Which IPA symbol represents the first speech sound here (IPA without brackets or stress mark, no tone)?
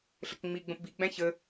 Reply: ɬ